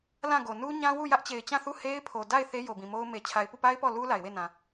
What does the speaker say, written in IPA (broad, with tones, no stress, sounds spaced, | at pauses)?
l ã˦˨ ɡ o˨ n u˦ ɲ ã˦ w u˦˨ j ä˦ ʔ t͡ɕ e˨ ɪ̯ t͡ɕ ã˦˨ θ u˦˨ h e˦ ɪ̯ pʰ o˨ d a˦˨ ɪ̯ θ e˦ j o˨ b ĩ˨ m o˦ ʊ̯ m e˨ t͡ɕʰ a˨ ɪ̯ p u˦˨ p a˦ ɪ̯ p ɔ˦˨ l u˦ l a˨ ɪ̯ w e˦˨ n ã˨